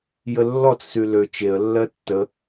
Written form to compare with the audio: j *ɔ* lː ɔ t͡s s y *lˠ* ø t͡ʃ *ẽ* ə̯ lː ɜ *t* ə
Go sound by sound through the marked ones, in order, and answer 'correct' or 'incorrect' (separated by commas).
incorrect, incorrect, incorrect, incorrect